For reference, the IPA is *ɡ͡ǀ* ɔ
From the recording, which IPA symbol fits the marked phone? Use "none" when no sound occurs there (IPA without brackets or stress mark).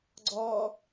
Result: ɡ͡ǀ